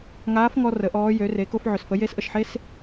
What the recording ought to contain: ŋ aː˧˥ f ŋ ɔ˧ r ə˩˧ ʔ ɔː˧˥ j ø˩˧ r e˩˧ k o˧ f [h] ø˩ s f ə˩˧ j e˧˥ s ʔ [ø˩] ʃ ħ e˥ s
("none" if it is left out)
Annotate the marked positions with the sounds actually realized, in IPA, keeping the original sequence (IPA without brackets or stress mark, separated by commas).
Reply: ʕ, ə˩